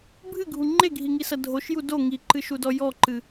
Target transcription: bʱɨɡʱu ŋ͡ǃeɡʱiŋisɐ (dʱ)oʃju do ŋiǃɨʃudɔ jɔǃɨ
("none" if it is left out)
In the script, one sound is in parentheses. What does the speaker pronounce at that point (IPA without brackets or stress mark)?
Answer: dʱ